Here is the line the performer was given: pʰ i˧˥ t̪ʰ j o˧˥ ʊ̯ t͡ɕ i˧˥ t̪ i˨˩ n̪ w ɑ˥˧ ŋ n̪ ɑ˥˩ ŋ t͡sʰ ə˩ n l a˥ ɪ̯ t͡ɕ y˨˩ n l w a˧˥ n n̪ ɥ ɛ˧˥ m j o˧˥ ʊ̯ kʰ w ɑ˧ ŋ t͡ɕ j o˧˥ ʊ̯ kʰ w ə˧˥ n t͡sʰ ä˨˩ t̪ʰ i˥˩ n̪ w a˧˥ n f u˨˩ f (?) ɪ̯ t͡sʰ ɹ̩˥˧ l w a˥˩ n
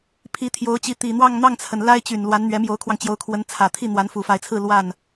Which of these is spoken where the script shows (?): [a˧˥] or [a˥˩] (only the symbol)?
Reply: a˧˥